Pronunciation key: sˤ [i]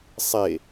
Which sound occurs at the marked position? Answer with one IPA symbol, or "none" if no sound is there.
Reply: e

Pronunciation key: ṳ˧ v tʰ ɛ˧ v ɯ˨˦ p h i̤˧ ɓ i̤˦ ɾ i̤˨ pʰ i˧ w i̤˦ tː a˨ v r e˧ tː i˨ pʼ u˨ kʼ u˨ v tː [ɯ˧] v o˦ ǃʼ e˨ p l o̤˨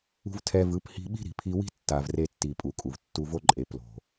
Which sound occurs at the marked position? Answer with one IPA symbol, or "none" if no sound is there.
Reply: u˧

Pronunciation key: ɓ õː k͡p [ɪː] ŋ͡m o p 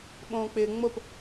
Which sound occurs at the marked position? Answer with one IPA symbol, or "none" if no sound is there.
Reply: ɪː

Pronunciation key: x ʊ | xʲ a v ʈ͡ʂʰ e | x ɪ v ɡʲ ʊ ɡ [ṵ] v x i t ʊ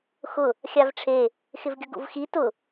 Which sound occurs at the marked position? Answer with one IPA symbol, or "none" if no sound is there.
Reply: ṵ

